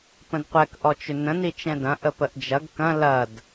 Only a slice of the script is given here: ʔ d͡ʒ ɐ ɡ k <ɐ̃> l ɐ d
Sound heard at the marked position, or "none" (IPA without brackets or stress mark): ɐ̃